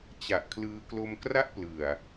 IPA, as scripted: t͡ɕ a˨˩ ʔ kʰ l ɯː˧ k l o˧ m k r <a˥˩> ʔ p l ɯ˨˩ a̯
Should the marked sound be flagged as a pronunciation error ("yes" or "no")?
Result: no